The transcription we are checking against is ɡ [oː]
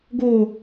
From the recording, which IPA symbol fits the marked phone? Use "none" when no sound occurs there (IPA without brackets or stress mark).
oː